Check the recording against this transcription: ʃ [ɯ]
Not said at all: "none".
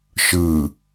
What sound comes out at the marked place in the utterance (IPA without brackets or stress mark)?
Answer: ɯ